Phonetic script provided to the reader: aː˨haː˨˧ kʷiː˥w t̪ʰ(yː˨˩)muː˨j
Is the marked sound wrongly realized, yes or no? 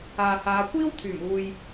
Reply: no